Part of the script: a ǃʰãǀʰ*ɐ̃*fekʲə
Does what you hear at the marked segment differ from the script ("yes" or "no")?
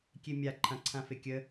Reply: yes